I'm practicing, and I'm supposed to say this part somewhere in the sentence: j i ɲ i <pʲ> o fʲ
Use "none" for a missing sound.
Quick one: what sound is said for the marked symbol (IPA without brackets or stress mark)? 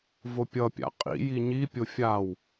pʲ